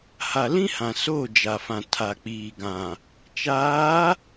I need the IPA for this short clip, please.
h a˨ l ĩ˦ h ã˨ s oː˦˨ d͡ʒ a˨ f ã˨ tʰ a˨ k͡p iː˨ ɡ ã˨ | t͡ʃ aː˨˦

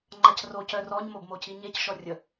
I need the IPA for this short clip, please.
ŋ͡ǃ a c r o c œ r ɔ ɲ m o b m o c i ɲ e c ʃ ɔ rʲ ə

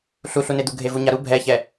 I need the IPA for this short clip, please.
ɬ u ɬ u n e d̪ u ɡʱ e v u ɲ a ɾ u bʱ ɛ ç ɛ

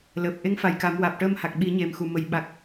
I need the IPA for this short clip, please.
l əː˨˩ p̚ ʔ e˧˥ ŋ f a˨˩ j k a˨˩˦ m w aː˨˩ p̚ ʈ əː˧ m h a˨˩ k̚ ɓ i˨˩˦ ɲ e˨˩ m x u˨˩ m ə˨˩ j ɓ a˨˩ k̚

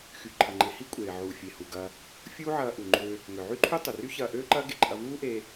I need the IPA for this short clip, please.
x y˩ ǃʰ ɐ˩ ŋ͡ǃ e˩ h i˥ kʷʼ eː˩ ʕ uː˩ fʲ e˩ h u˩ ɡ ɐː˧ | fʲ uː˥ ʕ ɐː˧ ʔ u˩ ŋ͡ǃ øː˧ | ŋ ʏ˩ ʕ y˥ ǃʰ y˥ tˤ ʏ˩ r y˥ ç ɐː˧ ʔ øː˥ ǃ ɐː˥ ɡ e˧ ǃʼ ɐ˧ v uː˥ ʔ eː˧

